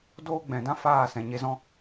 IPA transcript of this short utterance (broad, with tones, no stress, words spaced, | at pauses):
doː˦ɡ͡bɛ̃˨dã˦faː˦˨ sɛ̃˨ɲe˧zɔ̃˦